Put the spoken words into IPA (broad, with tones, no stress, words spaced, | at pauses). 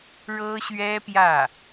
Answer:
ɻɤ˥ɕɥɛ˥pjä˥˩